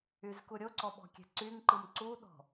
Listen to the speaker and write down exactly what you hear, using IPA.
y z k u ɾʲ o ǀ ɔ ɓ ɔ̤ kʲ ɛ̤ ǀ y ŋ ǃ ɯ m ǀ u ɗ ɔ̤

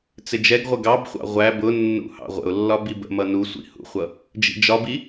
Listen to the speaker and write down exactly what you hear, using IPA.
t͡s ɪ d͡ʒ ɛ ɡ ʁʷ ə ɡ ɑ b χʷ ɑ̰ ʁʷ æ b ʊ nː ṵ h ɑ̰ ʁʷ ə̰ ʊ̯ lː ɒ b i b ə̰ m ʌ n u sʷ ḭ h ṵ χʷ ʌ | d͡ʒ ḭ d͡ʒ ɒ b i

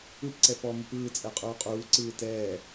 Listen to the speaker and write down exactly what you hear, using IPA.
ɯ p ǀ ɛ p ɔ m u p ɯː t͡sʼ ɛ qʼ uː qʼ uː ǀ ɯː t ɛː

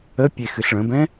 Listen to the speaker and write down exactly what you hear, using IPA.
ə pʲ e x ɨ ɬ ɭ ə̃ b ɛ̃

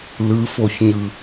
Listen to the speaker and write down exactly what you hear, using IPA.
l ɯ f o ç ɲ ɯ

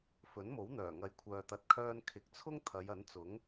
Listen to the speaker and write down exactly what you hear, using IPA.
f ɵ˨˥ n m o˨˥ w n̪ œː˨˩ ŋ ɐ˨ j kʷʰ œː˨ t̪ ɐ˨ t̚ kʰ œː˧ n kʰ ɪ˨ k̚ t͡sʰ ʊ˥ ŋ t̪ʰ ɐ˨˧ j ɐ˨˥ n t͡s ʊ˨˥ ŋ

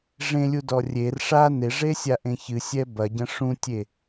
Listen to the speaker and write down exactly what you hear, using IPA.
ʐ ẽ lʲ u d ɔ rʲ e r ʂ a n e ʐ e sʲ a ʔ ẽ ç ɨ sʲ ɛ b ɐ ɟ ɐ̃ ʂ ũ tʲ e

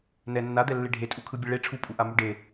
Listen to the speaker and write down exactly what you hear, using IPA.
n ɛ nː a d̪ ɛ lː e ɖʱ e tʼ u kʰ ɯ bʲ e ɭ e ʈ͡ʂʰ u pʼ u ʔ a m u ɖ e

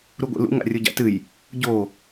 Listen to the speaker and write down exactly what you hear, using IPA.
ɾ u ɡʷ ḛ l ṵ ŋ a̰ rʲ o ɟ a̰ t ɨ j | ɟ o

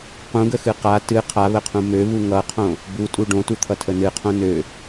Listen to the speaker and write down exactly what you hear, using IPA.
q ũ ɡ ə x ɨ q a t ɨ qʰ a β ə qʰ ũ m ø β u ŋ ʌ qʰ õ | b u tʼ u ɖ õ t u t̪ʰ ʌ tʰ ə n ɨ qʰ õ n ø

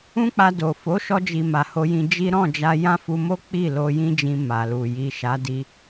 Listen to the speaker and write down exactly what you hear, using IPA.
ũ˦ k͡p a˧ d o˨ f o˨˦ ʃ ɔ˧ d͡ʒ i˨ m a˨ h o˧ j ĩ˧ d͡ʒ i˦ ɾ ɔ̃˦˨ d͡ʒ a˧ j ã˦ f u˧ m o˦ k͡p i˦˨ l o˧ j ĩ˦ d͡ʒ ĩ˧ m a˨ l u˨ j i˨ ʃ a˨˦ d i˧

